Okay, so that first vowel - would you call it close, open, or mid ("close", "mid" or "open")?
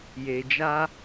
mid